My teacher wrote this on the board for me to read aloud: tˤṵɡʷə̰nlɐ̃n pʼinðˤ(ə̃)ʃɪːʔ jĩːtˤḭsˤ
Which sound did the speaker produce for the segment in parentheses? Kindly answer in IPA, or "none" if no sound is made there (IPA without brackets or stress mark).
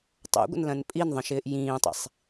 ə̃